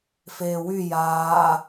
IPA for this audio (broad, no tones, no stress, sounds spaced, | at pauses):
f eː w y j aː